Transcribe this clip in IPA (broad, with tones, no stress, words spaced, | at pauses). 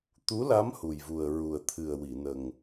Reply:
t̪u˧˥la˧˥m hu˨˩jvu˨˩ə̯ ɹu˨˩ə̯t̪ʰɨ˨˩ə̯wi˨˩˨nə˨˩ŋ